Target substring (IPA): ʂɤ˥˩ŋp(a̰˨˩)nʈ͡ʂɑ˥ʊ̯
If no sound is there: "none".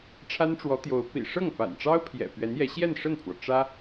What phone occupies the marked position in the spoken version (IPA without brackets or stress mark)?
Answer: a̰˨˩